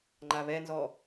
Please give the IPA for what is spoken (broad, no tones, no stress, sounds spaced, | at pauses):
ŋ͡ǃ a β ɛ n z ɔ